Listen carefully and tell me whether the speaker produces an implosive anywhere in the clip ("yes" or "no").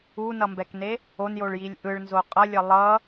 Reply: no